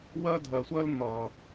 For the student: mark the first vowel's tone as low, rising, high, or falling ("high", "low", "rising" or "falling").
high